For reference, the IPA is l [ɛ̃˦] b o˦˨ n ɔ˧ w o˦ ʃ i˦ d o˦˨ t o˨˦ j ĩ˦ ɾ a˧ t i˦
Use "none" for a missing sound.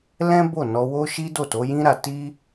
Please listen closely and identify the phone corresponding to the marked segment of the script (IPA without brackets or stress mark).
ɛ̃˦